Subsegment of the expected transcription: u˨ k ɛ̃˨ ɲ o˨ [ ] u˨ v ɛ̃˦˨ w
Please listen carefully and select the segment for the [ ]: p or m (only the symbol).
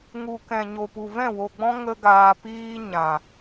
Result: p